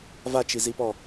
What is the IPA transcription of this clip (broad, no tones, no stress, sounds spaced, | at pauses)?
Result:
v a t͡ʃ i z i p ɔ